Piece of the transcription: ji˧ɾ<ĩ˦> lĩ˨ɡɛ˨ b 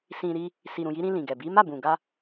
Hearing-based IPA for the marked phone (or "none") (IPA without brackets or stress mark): ĩ˧